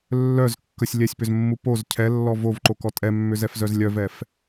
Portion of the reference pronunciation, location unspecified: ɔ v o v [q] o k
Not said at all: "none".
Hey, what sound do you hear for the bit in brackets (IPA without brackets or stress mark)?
ǃ